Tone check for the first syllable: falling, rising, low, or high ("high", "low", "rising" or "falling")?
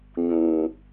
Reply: low